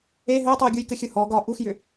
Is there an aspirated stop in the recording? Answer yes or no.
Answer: no